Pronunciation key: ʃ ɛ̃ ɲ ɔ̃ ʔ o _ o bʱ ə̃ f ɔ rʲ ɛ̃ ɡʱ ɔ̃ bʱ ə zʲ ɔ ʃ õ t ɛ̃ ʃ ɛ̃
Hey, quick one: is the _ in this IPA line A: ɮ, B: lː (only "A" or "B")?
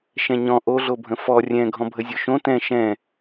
A